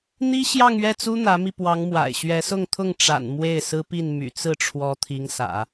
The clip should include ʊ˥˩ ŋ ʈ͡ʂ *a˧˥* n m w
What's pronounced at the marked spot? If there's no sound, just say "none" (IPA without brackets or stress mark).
a̰˨˩